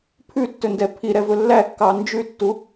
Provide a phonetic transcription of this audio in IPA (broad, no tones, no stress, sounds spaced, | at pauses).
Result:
pʰ ʉ tː ɵ n d ɛ pʰ i ɾ ɛ v ɵ lː æ kː ɑ n d͡ʒ ʉ tː u